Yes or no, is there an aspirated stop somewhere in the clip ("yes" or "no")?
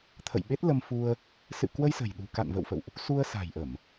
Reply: yes